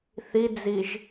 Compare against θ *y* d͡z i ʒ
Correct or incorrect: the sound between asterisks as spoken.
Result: incorrect: i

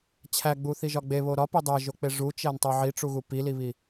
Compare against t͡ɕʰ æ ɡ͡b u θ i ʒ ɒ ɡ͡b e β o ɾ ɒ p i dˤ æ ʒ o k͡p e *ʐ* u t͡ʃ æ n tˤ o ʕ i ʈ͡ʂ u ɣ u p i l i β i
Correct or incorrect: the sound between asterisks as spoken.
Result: correct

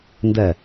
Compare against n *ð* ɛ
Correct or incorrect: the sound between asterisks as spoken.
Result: incorrect: d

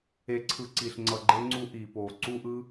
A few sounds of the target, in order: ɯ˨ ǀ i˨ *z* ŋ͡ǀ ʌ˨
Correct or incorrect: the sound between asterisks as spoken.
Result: incorrect: ɬ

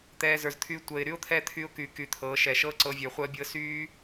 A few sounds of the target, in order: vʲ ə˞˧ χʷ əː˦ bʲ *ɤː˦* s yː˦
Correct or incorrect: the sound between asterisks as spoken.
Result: correct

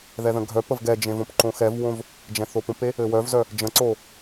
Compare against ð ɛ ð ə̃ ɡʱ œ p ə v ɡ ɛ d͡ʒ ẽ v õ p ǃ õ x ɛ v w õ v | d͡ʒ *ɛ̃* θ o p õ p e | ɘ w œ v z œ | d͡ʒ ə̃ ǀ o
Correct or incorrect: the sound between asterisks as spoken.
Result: correct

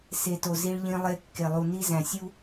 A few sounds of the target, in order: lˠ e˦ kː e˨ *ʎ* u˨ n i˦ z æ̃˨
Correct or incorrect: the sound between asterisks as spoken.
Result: incorrect: lˠ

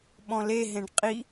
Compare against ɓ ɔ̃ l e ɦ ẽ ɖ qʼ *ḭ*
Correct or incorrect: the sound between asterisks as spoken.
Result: incorrect: i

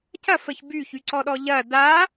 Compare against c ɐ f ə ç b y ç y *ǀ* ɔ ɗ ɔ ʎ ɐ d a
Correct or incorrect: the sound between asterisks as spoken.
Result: correct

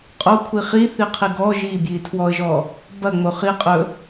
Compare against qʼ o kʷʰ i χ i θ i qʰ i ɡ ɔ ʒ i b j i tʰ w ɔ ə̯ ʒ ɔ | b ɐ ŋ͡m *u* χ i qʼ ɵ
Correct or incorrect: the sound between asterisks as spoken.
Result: incorrect: o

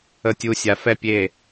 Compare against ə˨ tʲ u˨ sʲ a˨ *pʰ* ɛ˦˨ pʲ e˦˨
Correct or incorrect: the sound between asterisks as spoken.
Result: incorrect: f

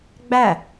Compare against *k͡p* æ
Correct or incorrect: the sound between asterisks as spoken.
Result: incorrect: ɡ͡b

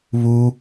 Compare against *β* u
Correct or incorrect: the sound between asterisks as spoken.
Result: correct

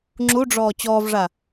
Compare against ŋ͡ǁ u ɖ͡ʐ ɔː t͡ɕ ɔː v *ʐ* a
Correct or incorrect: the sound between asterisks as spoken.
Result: correct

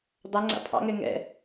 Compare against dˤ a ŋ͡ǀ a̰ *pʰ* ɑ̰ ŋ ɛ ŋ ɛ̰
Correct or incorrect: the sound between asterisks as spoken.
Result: correct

